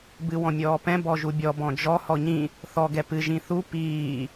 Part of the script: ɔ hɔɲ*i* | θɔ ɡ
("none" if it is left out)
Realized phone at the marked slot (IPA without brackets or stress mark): ĩ